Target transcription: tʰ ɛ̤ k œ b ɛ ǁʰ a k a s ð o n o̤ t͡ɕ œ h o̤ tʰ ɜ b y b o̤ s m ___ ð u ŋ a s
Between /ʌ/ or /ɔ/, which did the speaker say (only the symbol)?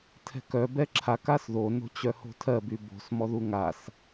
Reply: ɔ